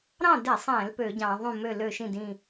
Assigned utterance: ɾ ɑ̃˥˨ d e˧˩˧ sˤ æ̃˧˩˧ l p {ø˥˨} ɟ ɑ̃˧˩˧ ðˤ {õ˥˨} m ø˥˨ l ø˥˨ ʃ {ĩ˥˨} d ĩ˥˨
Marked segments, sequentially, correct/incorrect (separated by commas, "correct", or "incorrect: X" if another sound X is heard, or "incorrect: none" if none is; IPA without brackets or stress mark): incorrect: ø˧˩˧, incorrect: ũ˥˨, correct